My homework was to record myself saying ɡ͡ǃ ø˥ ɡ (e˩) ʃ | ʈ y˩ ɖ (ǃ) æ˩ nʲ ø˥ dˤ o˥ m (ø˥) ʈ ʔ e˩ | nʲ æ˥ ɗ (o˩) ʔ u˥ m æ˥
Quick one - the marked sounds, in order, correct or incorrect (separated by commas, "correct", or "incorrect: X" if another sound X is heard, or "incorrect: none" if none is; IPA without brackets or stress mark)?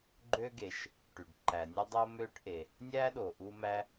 correct, correct, correct, correct